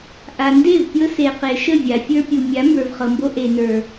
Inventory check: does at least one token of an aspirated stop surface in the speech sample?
no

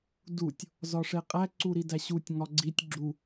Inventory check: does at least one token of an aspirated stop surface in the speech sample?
no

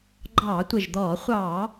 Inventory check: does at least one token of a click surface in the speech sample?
yes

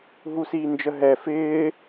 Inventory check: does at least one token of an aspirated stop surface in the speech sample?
no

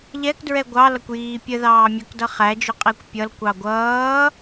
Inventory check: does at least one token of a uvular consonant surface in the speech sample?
yes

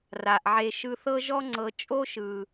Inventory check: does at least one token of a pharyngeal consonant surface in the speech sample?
yes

